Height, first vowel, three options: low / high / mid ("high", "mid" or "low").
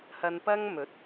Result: low